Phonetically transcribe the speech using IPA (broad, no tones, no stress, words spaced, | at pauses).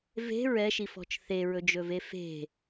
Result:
ve̤ ɹɛʃifɔ̤t͡ʃ θeɹɵd͡ʒɵve fe̤